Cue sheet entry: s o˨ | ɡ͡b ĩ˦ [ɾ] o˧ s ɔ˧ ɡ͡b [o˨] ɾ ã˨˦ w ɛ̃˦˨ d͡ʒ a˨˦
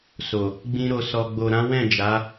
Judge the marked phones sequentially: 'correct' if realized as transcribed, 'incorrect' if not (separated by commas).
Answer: correct, correct